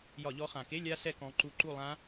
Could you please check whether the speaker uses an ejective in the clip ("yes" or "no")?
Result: no